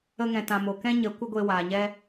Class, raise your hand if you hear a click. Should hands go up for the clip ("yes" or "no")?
no